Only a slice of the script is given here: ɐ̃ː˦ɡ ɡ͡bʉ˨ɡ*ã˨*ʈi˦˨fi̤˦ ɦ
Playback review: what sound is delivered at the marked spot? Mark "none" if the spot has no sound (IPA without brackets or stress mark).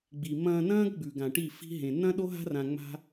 ã˨